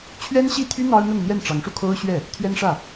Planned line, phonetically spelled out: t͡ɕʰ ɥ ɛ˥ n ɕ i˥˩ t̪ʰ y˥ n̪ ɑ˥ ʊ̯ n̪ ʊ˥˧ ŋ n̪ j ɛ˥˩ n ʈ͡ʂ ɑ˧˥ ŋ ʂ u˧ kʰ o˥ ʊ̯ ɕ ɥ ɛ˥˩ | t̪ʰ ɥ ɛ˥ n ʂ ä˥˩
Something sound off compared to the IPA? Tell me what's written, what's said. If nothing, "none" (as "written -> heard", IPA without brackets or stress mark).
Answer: none